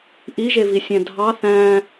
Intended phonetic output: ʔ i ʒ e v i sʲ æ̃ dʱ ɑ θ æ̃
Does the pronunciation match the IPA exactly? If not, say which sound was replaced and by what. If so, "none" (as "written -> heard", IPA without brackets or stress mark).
none